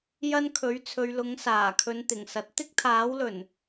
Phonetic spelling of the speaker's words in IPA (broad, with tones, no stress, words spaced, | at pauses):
jɐ˥nkʰɵ˨˥ɥt͡sʰɵ˨˧ɥlʊ˨˥ŋ saː˨˩kʰɵ˨˧nt̪ɪ˨˩ŋsɐ˨˥t̚ t̪ɪ˥k̚t̪ʰaː˨˥wlɵ˨˩n